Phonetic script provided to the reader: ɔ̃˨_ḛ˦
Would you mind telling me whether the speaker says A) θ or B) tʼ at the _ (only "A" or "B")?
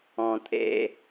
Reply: B